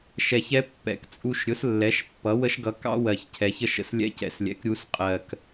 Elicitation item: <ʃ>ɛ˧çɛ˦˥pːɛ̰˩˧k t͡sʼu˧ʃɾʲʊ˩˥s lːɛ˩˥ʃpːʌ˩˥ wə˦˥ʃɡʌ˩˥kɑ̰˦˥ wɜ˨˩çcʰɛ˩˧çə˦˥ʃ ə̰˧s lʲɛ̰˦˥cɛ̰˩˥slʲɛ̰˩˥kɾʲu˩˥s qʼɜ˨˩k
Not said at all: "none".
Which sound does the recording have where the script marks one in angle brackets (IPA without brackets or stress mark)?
ʃ